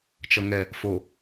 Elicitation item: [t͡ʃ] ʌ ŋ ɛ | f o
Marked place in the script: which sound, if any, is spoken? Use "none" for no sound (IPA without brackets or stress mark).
t͡ʃ